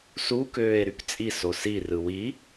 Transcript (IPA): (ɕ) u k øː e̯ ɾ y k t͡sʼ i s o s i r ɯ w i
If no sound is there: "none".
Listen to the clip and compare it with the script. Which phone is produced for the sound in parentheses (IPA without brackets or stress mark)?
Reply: s